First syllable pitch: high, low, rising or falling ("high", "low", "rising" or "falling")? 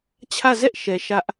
falling